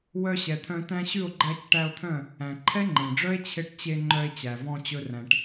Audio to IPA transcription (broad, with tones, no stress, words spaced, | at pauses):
wœ˧ɕɛ˨t̪ʰœ̃˧ tæ̃˧ɕʉ˦˨o̯ ɡ͡ǃæ˧c ʈæ˧o̯t̪ʰœ̃˦˨ | æ̃˨ ǃʰɛ˦ŋ͡ǃẽ˨ɖ͡ʐœ˦e̯ t͡ɕʰe˧ʈt͡ɕe˧ ŋ͡ǃœ˧e̯t͡ɕæ˨vɔ̃˧ t͡ɕɵ˦ræ̃˧ʈ